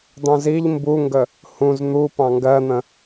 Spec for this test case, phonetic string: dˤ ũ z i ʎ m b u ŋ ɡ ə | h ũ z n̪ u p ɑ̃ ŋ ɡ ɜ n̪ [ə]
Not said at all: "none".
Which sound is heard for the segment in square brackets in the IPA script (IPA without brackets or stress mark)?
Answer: ə̃